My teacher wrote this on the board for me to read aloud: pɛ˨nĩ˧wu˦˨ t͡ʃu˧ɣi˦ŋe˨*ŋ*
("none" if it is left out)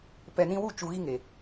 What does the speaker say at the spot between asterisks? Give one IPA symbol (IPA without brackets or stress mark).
none